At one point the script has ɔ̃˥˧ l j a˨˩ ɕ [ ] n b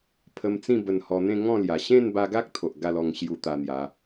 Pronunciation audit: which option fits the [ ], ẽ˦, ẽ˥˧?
ẽ˥˧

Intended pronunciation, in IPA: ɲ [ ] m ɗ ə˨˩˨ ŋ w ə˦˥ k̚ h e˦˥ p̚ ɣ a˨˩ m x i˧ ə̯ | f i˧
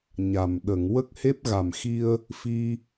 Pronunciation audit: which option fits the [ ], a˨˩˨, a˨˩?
a˨˩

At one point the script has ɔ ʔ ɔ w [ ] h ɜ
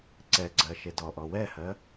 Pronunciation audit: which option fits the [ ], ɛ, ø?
ɛ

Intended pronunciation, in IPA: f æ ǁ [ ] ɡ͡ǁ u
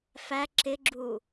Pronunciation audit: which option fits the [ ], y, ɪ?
ɪ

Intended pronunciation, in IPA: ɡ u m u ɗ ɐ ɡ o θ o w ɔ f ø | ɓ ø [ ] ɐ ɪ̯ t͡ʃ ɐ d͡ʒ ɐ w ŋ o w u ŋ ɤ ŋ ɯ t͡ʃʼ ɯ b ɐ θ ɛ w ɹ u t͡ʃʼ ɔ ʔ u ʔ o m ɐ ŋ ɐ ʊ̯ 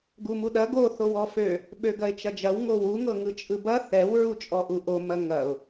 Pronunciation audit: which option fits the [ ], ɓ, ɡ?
ɡ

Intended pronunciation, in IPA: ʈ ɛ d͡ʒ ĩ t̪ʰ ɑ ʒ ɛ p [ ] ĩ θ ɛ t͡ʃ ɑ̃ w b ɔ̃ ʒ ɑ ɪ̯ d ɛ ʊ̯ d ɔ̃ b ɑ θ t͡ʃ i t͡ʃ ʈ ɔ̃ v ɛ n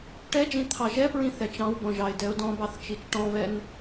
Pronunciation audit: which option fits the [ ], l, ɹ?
ɹ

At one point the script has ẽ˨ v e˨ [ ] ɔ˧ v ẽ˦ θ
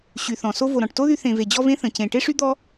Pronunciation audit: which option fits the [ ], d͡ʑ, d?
d͡ʑ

